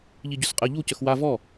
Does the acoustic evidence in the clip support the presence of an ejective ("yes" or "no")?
yes